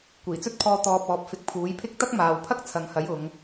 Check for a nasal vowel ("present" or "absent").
absent